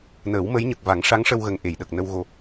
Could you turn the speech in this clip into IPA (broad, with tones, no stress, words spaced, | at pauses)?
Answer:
nəː˨˩˦wmə˧˥jɲə˨˩k̚ va˨˩˦ŋʂa˧˥ŋʂə˧wɣə˨˩ŋ ʔe˨˩˨jɗə˨˩k̚nə˧w ɣo˨˩